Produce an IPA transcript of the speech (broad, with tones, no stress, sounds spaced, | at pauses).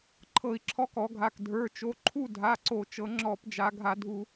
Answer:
ǃʰ ɤ˧˩˧ i̯ ǁʰ ɔ˨˥ k ɔ˩˧ ɡʱ a˩˧˩ k dʱ ə˞˩˧˩ t͡ʃ o˩˧˩ ǃʰ u˦˨ dʱ a˩˧˩ ǀ o˧˩˧ t͡ʃ ɤ˩˧ ŋ͡ǁ ɔ˧˩˧ p d͡ʒ a˩˧ ɡʱ a˧˩˧ dʱ u˧˩˧